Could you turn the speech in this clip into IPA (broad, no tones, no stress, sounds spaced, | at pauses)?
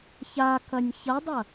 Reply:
ç a k ɐ nʲ ç ɐ dˤ ɐ